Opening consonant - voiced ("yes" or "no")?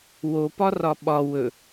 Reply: yes